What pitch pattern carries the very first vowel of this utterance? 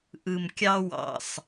low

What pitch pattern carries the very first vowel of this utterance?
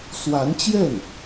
rising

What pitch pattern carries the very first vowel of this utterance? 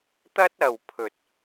high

